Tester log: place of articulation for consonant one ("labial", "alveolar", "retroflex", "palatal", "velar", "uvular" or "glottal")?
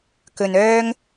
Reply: velar